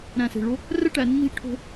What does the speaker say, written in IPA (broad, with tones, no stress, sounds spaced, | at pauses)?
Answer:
ɾ æ̃˧˩ s e̤˧˩ ɭ o˥ | r ɛ˥ ʈ æ˩˧ nː i̤˥˧ ʎ ʈʰ o̤˥